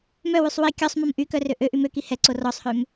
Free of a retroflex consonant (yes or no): yes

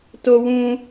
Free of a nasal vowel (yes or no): no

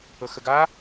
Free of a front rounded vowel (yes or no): yes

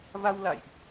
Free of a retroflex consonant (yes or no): yes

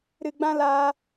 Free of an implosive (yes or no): yes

